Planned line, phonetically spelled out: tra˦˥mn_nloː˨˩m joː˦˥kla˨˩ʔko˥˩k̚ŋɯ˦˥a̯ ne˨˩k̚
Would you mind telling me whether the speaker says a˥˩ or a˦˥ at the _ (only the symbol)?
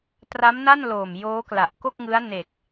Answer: a˥˩